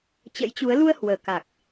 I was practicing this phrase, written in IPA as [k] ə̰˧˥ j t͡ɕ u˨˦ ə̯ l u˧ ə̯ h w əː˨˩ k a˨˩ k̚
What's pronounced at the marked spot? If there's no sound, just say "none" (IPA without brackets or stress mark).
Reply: t͡ɕ